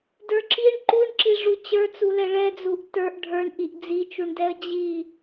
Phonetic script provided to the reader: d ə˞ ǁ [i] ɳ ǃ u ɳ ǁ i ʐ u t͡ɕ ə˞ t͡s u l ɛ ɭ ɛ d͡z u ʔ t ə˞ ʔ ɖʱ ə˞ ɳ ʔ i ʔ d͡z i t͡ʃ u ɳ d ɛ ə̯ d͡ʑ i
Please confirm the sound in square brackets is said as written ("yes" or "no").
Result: yes